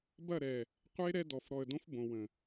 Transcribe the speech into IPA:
b ɐ˦˨ ɾ ɛ˨ | qʷ e˦ ɾ ɛ˦ d ɔ˨ f ɾ ɔ˨ ə̯ d õ˦ f b õ˨ w ə̃˨

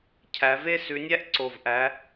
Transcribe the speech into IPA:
cʰ æ˨˦ v e˥ s ʉ˨˦ nʲ æ˥ ʔ ǀ o˧˩ v ʔ æ˨˦

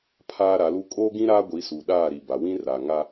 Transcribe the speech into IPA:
pʰ aː˦ ɾ a˨˦ l u˦ kʼ oː˦ ɡ ĩ˦ ɾ aː˦ ɡʷ i˨˦ s u˨ ɗ aː˦˨ ɾ i˨ b a˨ w ĩ˦ r a˨ ŋ a˦

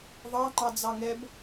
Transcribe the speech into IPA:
ðˤ ɑ ŋ͡ǃ ɑ d͡z ɑ ŋ ɛ b

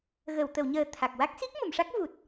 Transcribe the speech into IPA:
ɣ ə˨˩˨ w t̪ ə˨˩˨ w ɲ əː˨˩ t̪ʰ a˨˩ k̚ w a˦˥ k̚ s i˦˥ k̚ m ə˨˩˨ m ʂ a˦˥ k̚ v u˨˩ t̚

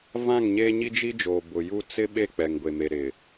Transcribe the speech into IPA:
v ã˦˨ ŋ ɲ eː˦ ɲ i˦ d͡ʒ i˦ d͡ʒ oː˨ b ʊ˨ j u˦ t͡s ɪ˦ ɓ e˦˨ k͡p ɛ˨ ŋ ɡʷ e˨ m e˨ ɾ ɪ˨

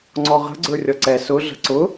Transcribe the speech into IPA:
ŋ͡ǀ ɔ ʁ ə̤ ɡ͡ǀ ə˞ rʲ ɔ ǀ ɛ s ʊ ɮ ə̤ ǀ ʊ

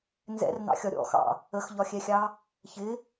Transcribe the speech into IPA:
n z ɛ̰ r n ɑ̰ xʲ ɒ ɾʲ ɔ̰ x ɑ̰ | ə x ʎ ɒ xʲ ɛ xʲ ɑ | ç ɪ

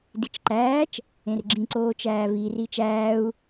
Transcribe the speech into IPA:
d i t͡ʃ ǃ æː t͡ʃ | ẽ r ɡ͡ǁ ĩ ǀ oː t͡ʃ æː v i r i t͡ʃ æː u̯

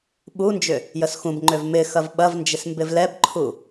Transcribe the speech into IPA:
ɓ u n d͡ʒ ʏ | j ə s x ũ b ŋ͡ǃ ø v m ɪ x ɐ v ɓ ɐ v n d͡ʒ ɪ s m b ɪ v l ɛ b ǃʰ u

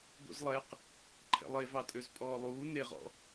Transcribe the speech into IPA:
d̪ o̰ z lˠ ɛ q | ǃʰ ɛ̰ lˠ e v ɑ tʼ ø z pʼ ɔː lˠ uː n e ʁ ɔ̰

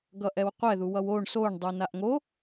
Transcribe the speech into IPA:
ɡ ʌ ʔ ɛ w qʷ ɛ ð u w ʌ w o ɳ s o ɳ dˤ u n a ʔ ŋ o

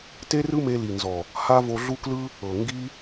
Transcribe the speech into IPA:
t e˦ r ɯ˦ m e˧ l i˨ n z ɔ˨ | h a˦ v o˧ ɮ u˦ k l ɯ˦ | ɤ˨ ŋ ɡ i˦

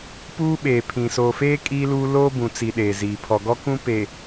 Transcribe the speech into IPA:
p uː˦ ɓ eː˨ pʰ ĩ˨ s oː˨ f eː˦ kʼ iː˦ l uː˦ l oː˦ b ũ˨ t͡s i˨ ɗ eː˨ z iː˨ pʰ ɔ˨ ɡ ɔ˦ k ũ˦ p e˨

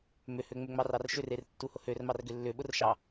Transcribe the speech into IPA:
m ʏ h ø ŋ͡m ʏ ŋ͡m ɑ r ɑ r ʃ ʏ r e r tː u h ʊ h ø r m ɑ r ɡ ʏ lː ʏ ɓ ʊ r ʃ ɑ

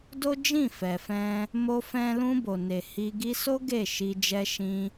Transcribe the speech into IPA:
d o˦ d͡ʒ ĩ˦˨ f ɛ˨ f ɛ̃˧ | m o˦ f ɛ̃˦ l ũ˧ b o˨ n e˨ h i˧ ɡ i˧ s o˦ ɡ e˦˨ ʃ i˧ d͡ʒ ɛ˧ ʃ ĩ˧

